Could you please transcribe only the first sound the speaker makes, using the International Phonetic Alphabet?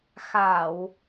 x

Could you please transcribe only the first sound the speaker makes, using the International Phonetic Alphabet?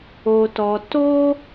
o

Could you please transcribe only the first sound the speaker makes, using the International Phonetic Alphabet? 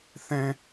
θ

